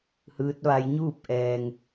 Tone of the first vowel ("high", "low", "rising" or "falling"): rising